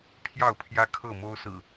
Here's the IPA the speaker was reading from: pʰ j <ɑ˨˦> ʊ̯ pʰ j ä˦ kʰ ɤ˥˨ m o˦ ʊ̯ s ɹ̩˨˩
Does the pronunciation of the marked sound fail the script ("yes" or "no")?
yes